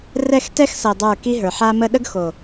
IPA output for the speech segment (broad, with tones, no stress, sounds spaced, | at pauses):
r ɛ˦˨ x t ɛ˦ x s ɤ˨ dˤ ə˞˦˨ k i˦ ɦ ə˞˨ ħ a˦ m ə˦ ɗ ə˦ ɡ x o˨